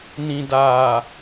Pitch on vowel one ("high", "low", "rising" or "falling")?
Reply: low